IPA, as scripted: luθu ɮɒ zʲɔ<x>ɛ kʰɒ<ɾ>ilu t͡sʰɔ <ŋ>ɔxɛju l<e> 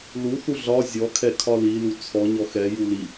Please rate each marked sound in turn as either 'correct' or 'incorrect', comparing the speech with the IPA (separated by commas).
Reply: incorrect, incorrect, incorrect, incorrect